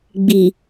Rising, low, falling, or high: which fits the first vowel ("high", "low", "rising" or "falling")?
low